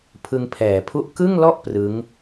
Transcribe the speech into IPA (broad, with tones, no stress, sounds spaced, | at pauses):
pʰ ɯ˧ ŋ pʰ ɛː˩˦ pʰ u˥˩ ʔ k ɯ˥˩ ŋ l ɔ˥˩ ʔ p r ɯ˦˥ ŋ